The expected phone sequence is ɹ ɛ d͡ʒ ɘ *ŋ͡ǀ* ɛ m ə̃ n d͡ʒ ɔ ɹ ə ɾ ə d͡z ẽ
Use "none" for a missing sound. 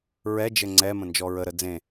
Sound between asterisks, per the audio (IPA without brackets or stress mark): ŋ͡ǀ